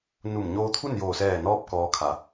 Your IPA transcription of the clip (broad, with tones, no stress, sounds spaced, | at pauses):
n u˧˩ m ɲ oː˧ t̪ʰ u˥˨ n j oː˧˩ s ɛː˧˩ n ɔː˧ p̚ k ɔː˧˥ kʰ a˩˧